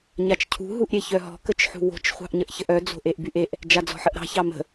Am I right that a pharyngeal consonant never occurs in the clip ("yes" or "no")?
no